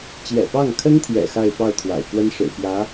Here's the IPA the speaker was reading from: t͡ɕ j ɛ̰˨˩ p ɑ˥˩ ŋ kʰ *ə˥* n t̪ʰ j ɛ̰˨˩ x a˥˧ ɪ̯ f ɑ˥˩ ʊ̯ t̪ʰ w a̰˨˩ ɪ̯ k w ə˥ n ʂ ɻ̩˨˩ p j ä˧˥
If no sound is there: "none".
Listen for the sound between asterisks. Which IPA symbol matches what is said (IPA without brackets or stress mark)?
ə˥